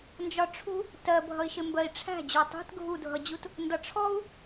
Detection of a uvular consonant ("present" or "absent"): absent